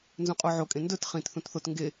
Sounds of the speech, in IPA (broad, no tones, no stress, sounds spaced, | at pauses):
n z ũ qʼ o ʕ o kʼ ẽ n d ɵ t χ ĩ t θ ũ t θ o t ŋ ɡ e